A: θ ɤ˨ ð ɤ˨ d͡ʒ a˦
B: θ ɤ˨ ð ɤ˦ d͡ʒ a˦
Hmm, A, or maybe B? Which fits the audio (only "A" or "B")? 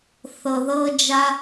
B